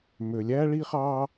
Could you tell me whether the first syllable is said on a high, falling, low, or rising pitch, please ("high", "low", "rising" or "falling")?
low